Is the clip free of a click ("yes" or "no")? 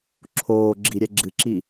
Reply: no